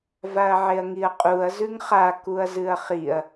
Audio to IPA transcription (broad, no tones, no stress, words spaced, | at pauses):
vaɐ̯ʕeɐ̯ŋiɐ̯qʼuɐ̯ zʉŋχa kuɐ̯zɨɐ̯χiɐ̯